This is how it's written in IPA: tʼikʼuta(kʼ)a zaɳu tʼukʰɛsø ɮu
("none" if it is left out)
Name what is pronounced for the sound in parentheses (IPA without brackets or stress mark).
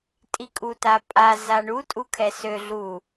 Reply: pʼ